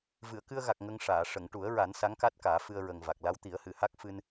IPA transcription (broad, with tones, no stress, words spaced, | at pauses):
vɨ˨˩˨ə̯kɨ˧ə̯ɣa˨˩k̚ ŋə˧ŋʂaː˨˩˨ ʂə˨˩˨ŋʈu˨˩˦ə̯ɹa˨˩˦n sa˧˥ŋka˦˥t̚kaː˨˩˦ fɨ˧ə̯ɹə˨˩ŋva˨˩k̚ la˧˥w t̪i˨˩˦ə̯hɨ˨˩˨ha˦˥k̚ fɨ˧n